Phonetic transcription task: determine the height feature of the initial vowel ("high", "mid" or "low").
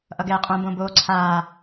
mid